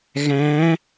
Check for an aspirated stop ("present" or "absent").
absent